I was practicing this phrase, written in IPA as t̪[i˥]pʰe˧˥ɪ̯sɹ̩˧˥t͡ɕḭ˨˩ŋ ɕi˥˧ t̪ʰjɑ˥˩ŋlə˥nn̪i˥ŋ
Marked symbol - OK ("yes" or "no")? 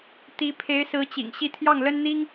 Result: no